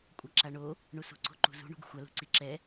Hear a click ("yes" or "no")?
yes